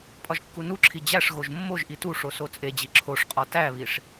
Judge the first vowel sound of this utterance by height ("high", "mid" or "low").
low